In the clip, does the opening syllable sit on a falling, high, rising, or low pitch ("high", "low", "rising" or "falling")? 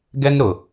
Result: high